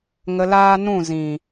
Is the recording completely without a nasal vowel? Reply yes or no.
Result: no